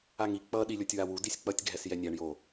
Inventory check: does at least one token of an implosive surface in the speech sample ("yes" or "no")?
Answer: yes